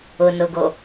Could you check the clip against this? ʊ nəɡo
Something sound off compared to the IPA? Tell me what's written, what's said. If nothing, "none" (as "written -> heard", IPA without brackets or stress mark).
ə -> ʊ